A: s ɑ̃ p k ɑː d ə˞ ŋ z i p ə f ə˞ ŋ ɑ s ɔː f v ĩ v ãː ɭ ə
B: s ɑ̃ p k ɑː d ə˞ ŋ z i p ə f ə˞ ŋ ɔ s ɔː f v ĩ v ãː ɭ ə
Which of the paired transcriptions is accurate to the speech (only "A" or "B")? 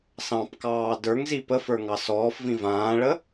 A